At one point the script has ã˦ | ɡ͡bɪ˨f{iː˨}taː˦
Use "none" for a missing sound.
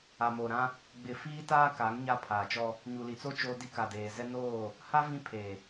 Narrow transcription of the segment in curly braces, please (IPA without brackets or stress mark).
iː˦